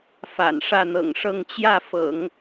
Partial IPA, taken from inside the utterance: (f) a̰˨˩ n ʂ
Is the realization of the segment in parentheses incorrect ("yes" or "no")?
no